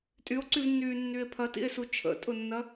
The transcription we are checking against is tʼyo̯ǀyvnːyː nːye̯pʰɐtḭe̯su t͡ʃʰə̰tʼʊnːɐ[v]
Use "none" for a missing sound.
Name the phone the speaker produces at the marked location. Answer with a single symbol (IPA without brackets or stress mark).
none